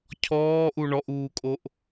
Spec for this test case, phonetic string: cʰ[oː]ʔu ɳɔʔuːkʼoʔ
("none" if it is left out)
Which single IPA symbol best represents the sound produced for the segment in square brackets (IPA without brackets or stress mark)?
ɔː